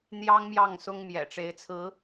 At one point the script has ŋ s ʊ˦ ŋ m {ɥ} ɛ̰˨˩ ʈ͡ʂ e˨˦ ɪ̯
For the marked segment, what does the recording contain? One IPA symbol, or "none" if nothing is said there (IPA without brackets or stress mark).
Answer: j